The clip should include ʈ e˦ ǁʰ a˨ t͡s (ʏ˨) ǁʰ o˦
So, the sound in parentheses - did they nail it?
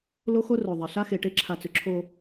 yes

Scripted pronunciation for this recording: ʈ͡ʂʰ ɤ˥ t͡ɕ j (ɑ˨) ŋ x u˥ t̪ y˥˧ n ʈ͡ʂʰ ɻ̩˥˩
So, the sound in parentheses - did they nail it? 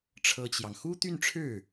yes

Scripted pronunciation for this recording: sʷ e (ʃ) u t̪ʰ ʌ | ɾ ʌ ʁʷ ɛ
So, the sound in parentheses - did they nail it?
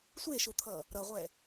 yes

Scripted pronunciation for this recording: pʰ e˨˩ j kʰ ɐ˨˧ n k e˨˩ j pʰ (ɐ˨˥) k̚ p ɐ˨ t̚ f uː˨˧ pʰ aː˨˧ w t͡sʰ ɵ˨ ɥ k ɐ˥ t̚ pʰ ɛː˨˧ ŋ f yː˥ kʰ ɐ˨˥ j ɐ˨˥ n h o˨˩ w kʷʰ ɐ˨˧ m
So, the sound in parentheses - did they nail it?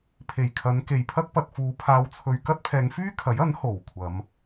no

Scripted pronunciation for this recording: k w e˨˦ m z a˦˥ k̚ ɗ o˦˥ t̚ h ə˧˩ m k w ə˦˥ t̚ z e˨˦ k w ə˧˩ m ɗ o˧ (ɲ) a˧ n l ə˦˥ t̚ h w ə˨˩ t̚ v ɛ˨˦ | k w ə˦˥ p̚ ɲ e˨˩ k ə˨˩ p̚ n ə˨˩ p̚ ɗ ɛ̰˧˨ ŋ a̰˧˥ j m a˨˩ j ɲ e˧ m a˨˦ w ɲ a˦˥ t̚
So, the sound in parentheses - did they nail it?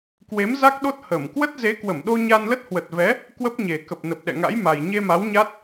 yes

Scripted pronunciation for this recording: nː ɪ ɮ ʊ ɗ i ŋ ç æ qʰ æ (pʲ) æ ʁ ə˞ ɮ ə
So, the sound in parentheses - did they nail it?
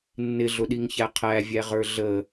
no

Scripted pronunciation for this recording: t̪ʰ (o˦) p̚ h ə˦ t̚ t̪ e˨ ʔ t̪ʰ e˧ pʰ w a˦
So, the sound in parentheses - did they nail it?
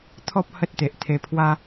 no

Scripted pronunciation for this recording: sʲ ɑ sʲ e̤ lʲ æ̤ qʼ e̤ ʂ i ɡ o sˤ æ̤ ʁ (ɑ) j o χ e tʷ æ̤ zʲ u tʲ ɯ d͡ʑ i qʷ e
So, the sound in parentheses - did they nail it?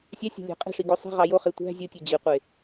yes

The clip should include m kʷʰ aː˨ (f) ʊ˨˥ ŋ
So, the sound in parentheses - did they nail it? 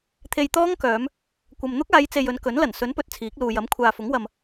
yes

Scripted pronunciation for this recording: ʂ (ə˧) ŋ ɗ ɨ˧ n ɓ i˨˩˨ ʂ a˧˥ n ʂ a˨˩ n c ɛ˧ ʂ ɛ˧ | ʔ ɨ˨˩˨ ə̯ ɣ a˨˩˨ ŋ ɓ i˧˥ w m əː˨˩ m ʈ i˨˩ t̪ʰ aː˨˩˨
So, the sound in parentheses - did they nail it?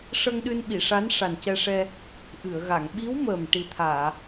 yes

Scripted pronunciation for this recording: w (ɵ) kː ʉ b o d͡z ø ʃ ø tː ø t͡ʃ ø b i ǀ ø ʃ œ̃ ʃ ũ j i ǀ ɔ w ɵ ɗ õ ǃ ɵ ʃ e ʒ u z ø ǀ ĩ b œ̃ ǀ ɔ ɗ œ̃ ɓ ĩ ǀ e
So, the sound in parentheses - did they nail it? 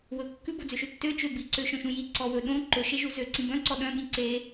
yes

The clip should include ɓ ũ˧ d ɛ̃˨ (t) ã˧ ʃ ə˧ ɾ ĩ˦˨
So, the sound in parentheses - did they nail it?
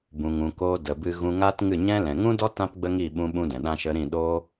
no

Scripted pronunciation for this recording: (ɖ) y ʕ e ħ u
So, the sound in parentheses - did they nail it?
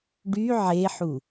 yes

